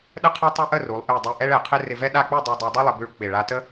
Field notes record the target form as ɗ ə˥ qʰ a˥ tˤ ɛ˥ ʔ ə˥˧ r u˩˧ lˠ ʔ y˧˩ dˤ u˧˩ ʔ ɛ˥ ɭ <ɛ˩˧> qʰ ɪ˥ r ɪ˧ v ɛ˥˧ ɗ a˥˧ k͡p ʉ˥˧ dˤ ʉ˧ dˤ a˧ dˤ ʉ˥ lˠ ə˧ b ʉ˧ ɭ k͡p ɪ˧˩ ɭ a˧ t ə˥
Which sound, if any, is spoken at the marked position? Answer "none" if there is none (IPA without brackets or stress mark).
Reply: ɛ˩˧